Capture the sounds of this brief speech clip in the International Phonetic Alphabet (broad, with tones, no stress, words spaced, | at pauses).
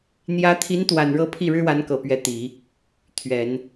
n̪jä˧˥t̪ʰi˧˥n t̪wa˨˩nɻɤ˧˥ pʰi˥˩ɻɻ̩˥wa˧˥nkɤ˨˩ pɥɛ˧˥t̪i˨˩˦ | t̪ʰɥɛ˨˩˦n